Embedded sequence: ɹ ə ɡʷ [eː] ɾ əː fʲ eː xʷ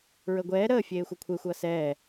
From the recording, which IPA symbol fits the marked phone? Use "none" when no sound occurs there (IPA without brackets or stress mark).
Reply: ɛː